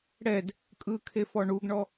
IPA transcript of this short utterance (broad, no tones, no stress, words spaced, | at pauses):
ɽɛd | kʼɯkʰe fɔɳuɡɳɔ